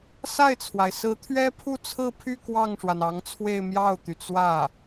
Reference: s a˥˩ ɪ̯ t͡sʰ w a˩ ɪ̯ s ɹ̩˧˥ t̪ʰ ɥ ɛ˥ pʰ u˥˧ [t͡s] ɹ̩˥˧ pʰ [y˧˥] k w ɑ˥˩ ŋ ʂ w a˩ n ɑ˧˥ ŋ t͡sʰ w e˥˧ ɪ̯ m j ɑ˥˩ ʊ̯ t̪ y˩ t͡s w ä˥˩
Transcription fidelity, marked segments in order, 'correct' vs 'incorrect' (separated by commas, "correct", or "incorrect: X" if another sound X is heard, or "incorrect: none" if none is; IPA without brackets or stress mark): incorrect: t͡sʰ, incorrect: y˥˧